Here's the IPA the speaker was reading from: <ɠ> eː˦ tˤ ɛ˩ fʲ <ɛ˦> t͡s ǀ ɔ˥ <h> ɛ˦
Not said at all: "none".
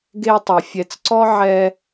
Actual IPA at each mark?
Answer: ɡ, ɛ˨, ʕ

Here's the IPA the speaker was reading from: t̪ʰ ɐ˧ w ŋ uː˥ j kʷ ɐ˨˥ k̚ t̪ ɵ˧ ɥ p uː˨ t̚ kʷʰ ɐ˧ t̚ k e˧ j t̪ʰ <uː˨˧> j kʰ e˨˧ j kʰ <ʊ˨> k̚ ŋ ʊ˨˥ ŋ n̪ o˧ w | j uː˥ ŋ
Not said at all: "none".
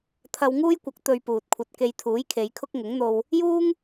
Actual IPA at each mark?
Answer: uː˨˥, ʊ˥

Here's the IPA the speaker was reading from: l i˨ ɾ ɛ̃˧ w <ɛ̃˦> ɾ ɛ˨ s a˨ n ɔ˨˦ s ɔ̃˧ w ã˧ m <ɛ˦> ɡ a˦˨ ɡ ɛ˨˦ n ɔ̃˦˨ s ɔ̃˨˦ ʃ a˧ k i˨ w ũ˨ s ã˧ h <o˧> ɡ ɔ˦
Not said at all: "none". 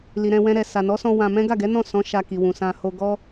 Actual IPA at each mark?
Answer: ɛ̃˧, ɛ̃˦, o˧

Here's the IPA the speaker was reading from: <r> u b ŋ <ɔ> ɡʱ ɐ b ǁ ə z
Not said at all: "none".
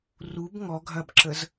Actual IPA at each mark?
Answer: r, ɔ

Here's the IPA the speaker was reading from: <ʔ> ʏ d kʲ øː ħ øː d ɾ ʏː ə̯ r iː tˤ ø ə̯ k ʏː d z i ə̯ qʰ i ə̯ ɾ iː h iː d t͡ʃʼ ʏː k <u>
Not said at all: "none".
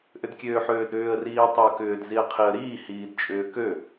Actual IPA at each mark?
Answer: ʔ, ø

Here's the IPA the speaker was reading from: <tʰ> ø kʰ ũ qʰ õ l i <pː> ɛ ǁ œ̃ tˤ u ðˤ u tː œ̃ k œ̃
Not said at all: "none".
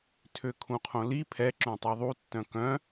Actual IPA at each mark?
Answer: tʰ, pʰ

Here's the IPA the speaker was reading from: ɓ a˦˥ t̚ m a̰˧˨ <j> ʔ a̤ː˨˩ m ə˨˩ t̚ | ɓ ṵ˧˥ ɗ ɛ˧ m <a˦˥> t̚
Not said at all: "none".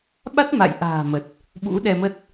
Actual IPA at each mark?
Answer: j, ə˦˥

